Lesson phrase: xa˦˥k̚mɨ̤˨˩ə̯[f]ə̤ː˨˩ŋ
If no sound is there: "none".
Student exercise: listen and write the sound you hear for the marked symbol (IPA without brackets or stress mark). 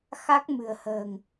h